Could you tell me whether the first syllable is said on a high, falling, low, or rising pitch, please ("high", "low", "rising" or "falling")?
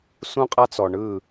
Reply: high